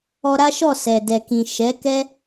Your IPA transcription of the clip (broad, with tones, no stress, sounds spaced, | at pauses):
ɔ˧ ɾ a˦ ʃ ɔ˦˨ s ɛ˨ d ɛ˨ k ĩ˨ ʃ ɛ˨˦ k ɛ˦